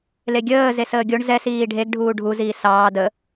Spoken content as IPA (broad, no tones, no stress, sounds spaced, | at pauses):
l e ɡʲ əː z e s əː ɡʲ o ɳ z ɛ s iː ɖʱ e ɡ ɖʱ uː ɖʱ u z iː s ɑː d ə